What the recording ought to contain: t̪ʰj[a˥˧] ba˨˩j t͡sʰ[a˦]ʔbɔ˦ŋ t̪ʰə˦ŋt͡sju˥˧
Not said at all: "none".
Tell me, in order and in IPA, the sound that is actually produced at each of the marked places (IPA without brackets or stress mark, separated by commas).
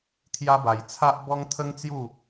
a˧, a˦